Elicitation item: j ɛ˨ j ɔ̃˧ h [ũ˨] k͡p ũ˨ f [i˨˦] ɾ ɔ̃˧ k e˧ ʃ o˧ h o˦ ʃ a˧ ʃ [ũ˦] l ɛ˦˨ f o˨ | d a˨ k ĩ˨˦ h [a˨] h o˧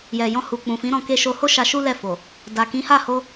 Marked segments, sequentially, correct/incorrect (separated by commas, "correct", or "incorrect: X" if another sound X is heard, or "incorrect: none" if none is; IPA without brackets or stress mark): incorrect: u˨, incorrect: ĩ˨˦, incorrect: u˦, incorrect: a˦˨